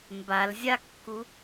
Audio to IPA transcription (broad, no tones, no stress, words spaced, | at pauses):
mbalzʲakːu